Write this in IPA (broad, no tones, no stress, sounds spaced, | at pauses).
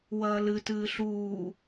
w ɐː l ɨ t ɨː ɬ uː